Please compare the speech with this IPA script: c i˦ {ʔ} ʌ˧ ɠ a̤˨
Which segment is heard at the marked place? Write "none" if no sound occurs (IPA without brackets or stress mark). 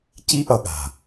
ʔ